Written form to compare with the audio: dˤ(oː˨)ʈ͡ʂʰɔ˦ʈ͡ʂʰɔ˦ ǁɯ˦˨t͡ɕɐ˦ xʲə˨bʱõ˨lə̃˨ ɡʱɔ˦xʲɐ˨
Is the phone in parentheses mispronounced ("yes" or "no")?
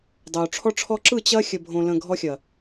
no